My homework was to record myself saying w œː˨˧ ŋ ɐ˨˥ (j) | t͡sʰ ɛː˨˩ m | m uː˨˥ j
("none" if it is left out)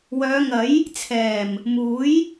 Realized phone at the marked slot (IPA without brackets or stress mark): j